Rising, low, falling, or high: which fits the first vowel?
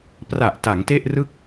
low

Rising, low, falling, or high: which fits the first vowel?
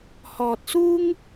low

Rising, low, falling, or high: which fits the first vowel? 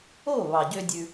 falling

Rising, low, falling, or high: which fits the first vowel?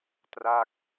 falling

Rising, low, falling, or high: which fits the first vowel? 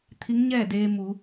rising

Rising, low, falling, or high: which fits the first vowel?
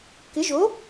rising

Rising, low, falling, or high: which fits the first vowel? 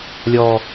low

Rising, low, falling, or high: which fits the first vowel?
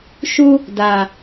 high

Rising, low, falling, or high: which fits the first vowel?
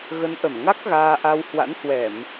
rising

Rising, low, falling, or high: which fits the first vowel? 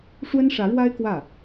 high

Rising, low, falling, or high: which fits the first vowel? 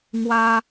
high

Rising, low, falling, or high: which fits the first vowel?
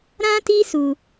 high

